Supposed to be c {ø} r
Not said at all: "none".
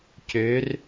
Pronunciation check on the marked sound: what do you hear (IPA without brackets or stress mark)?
ø